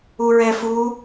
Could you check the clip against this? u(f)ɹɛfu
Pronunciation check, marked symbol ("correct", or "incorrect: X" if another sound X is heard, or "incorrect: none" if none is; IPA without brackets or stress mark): incorrect: none